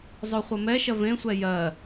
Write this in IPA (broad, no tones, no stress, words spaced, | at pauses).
zˤoχʷɐmɛʃɐ vẽsʷɛ jɜ